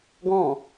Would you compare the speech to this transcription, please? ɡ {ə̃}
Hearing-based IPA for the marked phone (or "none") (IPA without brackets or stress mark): ɔ̃